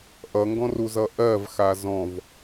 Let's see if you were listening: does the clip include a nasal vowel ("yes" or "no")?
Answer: yes